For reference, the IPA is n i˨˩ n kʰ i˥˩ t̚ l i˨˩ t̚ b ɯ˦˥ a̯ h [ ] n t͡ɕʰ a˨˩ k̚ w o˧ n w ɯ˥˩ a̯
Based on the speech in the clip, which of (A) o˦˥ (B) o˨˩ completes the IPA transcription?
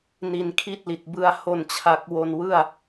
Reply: B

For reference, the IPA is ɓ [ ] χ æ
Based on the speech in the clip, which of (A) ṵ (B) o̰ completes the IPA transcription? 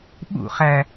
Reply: A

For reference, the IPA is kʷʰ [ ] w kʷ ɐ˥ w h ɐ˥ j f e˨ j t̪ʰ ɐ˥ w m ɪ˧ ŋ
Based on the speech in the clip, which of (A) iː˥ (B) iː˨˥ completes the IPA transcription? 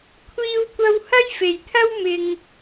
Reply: A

